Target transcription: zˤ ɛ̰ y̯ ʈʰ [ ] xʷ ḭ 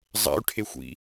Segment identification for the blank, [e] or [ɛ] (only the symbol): e